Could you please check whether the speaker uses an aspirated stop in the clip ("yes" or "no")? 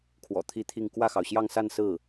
yes